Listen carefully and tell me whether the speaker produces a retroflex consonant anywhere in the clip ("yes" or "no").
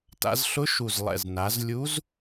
no